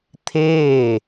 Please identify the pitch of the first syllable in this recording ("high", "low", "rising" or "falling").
falling